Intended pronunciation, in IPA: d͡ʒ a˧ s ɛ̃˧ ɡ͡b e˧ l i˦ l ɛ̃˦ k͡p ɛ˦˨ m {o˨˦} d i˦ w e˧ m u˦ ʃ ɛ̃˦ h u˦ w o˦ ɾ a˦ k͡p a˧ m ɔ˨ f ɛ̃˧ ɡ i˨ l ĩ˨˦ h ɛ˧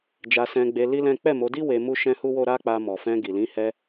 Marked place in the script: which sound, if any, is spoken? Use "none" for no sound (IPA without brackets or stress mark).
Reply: o˨˦